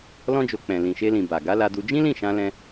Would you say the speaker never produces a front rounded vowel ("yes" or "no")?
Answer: yes